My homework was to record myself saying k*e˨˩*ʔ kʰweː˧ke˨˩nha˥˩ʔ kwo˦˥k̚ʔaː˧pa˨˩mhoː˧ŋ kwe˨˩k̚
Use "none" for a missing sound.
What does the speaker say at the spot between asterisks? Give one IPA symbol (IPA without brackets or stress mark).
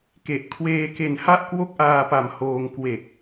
e˨˩